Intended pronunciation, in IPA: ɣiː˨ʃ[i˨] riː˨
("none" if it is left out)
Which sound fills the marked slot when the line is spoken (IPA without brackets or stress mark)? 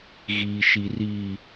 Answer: i˨